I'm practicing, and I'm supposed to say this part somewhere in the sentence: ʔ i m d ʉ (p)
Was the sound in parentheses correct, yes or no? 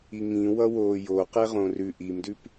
yes